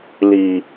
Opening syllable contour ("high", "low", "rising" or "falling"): low